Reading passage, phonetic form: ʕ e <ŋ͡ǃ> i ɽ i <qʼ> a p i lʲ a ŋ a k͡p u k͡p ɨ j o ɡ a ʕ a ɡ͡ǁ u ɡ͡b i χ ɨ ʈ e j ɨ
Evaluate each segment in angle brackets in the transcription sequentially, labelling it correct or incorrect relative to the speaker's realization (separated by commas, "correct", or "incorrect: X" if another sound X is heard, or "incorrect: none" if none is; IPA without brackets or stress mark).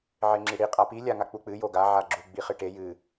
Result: incorrect: ŋ͡ǁ, correct